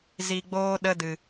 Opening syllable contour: low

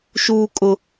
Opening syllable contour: low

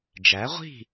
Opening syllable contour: rising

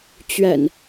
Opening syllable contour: low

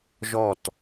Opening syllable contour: falling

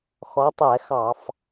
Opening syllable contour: rising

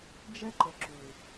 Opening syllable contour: high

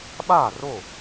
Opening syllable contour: falling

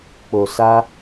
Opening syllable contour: low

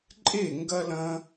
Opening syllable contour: falling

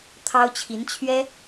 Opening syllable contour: high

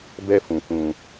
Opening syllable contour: high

